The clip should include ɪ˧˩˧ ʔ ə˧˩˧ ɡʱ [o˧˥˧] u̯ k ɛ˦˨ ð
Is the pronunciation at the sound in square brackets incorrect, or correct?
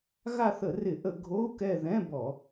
correct